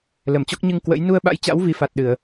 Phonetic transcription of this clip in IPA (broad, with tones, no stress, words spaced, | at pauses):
lə˧˩mt͡ɕɔ˦˥k̚ ɲɨ˧ŋ kwə̰˧˥j nu˧ə̯ɓa̰˧˥jt͡ɕa̰˧˥w vi˨˦fa˨˩t̚ɗɨ˧˩˨ə̯